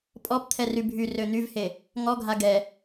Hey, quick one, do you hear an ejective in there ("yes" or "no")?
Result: yes